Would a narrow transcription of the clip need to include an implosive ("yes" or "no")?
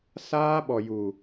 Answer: yes